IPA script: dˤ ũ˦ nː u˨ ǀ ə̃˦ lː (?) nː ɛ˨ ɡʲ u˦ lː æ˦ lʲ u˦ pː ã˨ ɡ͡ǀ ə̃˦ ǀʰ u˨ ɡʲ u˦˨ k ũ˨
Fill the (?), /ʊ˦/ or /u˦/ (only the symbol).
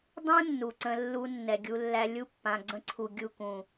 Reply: u˦